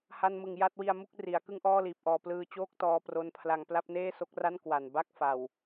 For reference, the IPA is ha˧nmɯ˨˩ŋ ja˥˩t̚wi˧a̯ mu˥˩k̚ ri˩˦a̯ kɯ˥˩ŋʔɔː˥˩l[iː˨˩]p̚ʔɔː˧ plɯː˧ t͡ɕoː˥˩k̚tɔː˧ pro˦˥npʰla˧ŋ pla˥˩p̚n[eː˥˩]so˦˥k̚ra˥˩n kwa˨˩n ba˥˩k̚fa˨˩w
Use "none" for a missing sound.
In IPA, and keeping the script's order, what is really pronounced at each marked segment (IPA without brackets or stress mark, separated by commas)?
iː˨˩, eː˥˩